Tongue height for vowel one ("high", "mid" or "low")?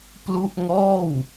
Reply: high